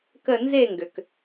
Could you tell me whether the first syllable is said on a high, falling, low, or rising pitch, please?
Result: falling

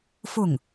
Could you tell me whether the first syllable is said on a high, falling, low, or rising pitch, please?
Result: falling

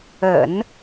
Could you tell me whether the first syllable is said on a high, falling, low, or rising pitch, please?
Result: low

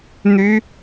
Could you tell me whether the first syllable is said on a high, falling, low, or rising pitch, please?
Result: high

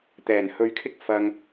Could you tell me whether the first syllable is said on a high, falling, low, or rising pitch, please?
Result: low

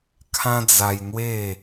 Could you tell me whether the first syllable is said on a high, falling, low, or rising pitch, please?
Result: high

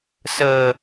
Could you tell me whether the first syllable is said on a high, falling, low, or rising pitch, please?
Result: low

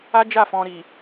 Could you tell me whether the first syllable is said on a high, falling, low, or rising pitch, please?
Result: high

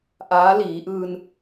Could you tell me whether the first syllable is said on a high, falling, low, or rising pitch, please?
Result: rising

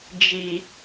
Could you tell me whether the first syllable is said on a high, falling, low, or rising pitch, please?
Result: low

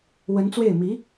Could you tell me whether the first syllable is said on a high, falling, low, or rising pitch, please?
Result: rising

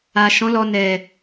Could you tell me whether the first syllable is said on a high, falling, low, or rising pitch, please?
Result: low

